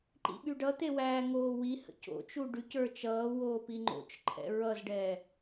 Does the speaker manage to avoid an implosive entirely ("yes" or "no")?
no